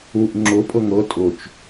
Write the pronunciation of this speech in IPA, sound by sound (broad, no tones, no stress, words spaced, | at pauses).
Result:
uʔ ŋ͡ǁʊ pʼɤŋɤ tʼʊt͡ʃ